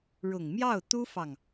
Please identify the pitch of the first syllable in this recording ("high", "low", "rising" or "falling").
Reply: low